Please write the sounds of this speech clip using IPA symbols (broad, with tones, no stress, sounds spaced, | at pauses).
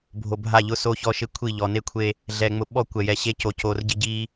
bʱ o˨ bʱ a˦˨ ʎ ʊ˦ s o˦ ç ɔ˦ ʃ ɪ˦ kʷʰ i˦˨ ʎ ɔ˨ n e˦ kʷʰ e˦ | ɮ ɛ˨ ŋ͡m ʊ˨ ɓ ɔ˦˨ kʷ ɛ˨ j ɛ˨˦ ɕ e˦ c o˨ c o˨ r ɟ ɪ˦ ɟ i˦